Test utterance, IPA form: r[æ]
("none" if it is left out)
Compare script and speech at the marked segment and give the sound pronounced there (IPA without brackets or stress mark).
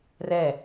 ɛ